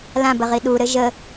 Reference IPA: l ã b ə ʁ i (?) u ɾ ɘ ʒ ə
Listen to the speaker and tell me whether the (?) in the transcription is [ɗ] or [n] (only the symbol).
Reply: ɗ